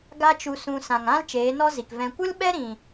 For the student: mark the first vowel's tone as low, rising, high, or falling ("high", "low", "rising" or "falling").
high